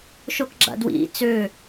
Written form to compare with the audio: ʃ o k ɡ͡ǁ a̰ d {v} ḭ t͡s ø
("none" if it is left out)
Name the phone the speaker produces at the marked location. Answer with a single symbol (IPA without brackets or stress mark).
w